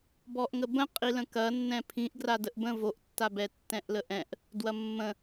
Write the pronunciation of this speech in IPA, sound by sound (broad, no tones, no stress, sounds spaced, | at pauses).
b ɔ ʔ ŋ ə b ə̃ qʼ i l ə̃ k ɐ nː ɛ̃ pʰ ĩ ʔ ɡ r a d ə ʔ b ə̃ v o ʔ tː a b ɛ tː ɛ̃ ʔ l ə ʔ ɛ̃ ʔ | d w ɐ mː ə̃